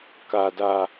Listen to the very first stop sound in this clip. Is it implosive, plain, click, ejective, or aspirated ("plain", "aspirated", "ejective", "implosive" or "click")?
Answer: plain